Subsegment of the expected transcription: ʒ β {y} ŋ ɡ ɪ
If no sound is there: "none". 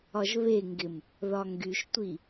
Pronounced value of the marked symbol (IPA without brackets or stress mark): e